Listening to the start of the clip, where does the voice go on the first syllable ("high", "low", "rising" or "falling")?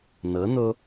rising